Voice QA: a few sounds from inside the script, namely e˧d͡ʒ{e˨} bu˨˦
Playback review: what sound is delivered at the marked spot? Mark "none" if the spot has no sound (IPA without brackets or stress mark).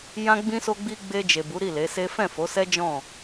e˨